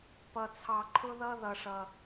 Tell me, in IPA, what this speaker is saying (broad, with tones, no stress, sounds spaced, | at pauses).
p ʌ˧ t͡sʰ ɑ˧ ǃʰ ʊ˦ ð ʌ˦ ð ʌ˧ ʂ ʌ˧